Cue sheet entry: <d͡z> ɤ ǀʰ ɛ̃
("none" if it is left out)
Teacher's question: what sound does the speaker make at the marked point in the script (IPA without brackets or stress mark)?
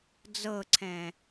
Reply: d͡z